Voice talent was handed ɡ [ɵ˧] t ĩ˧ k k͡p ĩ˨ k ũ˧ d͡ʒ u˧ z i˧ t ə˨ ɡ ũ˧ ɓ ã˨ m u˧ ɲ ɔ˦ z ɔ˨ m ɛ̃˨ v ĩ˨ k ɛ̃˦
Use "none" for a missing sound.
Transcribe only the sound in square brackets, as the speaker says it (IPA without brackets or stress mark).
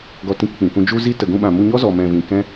ɔ˧